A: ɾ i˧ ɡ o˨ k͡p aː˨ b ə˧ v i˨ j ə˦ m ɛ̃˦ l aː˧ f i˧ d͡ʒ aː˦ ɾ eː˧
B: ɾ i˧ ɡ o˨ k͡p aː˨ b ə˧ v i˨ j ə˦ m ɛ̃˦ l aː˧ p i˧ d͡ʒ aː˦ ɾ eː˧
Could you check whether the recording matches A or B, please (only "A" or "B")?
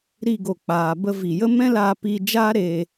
B